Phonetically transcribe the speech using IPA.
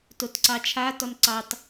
t o t ǀ ɑ t͡ʃʰ a t ɔ n ǀ ɑ t

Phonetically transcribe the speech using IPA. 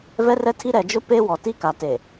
v ɛ˦ r ɛ˦ tʰ i˦ ɾ ɛ˨ d͡ʒ ʊ˦ p e˦ w ɔ˨ t i˦ k a˨ t e˨

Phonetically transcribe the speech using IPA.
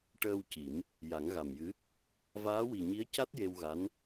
ʈ əː˧ w c i˨˩˦ m | j a˨˩˦ ŋ ɣ a˨˩ m j ɨ˧˥ | v aː˧˥ w i˨˩ ɲ i˧˥ ə̯ c a˦˥ t̚ j e˧ w ɣ a˧˥ n

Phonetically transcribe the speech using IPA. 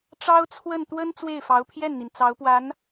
ʈ͡ʂ ɑ˥ ʊ̯ t͡sʰ w ə˥˩ n t̪ w ə˥ n t͡s w e˥˩ ɪ̯ f ɑ˧˥ ʊ̯ pʰ j ɛ˥˩ n n̪ i˩ n t͡s ɑ˧˥ ʊ̯ p w a˧˥ n

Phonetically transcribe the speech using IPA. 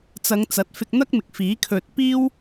t͡s ɐ˨˧ ŋ t͡s ɐ˨˥ t̚ f ɪ˧ k̚ n̪ ɐ˥ k̚ m ɪ˨ k̚ f iː˨˥ kʰ ɵ˧ t̚ p iː˥ w

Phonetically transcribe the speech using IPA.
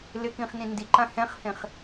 l ɪ k ĩ χ n ĩ n d i ǃ ã h ɛ̃ χ h ẽ χ

